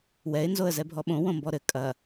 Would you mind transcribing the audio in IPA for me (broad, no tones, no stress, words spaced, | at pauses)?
wɛɪ̯nzoə̯ zɛbʱɔɓõ wõmbɔɾɘ kʼɐ